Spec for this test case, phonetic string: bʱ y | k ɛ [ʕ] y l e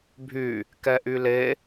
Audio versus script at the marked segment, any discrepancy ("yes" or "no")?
yes